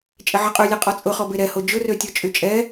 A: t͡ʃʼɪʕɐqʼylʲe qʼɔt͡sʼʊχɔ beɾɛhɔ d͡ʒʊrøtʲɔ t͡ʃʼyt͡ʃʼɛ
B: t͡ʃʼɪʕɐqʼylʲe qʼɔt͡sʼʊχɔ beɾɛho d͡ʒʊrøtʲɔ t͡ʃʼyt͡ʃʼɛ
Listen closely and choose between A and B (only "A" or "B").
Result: B